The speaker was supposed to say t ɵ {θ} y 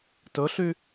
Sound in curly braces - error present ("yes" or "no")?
yes